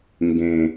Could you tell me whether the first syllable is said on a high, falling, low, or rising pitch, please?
low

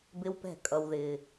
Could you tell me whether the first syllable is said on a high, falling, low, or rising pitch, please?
high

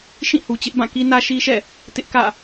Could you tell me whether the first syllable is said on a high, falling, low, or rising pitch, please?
falling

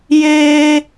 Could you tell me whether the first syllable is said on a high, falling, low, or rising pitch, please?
high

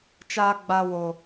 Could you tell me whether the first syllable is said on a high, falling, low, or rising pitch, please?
high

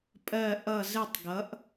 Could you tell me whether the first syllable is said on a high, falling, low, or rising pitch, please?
falling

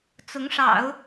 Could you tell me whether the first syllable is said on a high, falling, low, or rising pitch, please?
rising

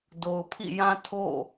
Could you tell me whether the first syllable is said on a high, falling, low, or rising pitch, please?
low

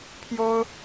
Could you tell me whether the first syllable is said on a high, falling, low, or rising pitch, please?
high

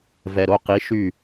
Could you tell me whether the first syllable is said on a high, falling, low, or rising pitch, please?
low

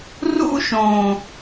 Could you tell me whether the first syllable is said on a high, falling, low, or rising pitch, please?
high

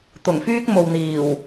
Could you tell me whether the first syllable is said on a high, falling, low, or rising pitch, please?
low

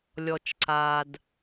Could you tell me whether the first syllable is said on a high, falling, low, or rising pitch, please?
low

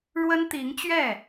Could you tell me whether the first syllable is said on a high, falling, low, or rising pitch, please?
high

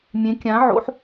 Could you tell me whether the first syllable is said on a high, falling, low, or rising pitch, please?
rising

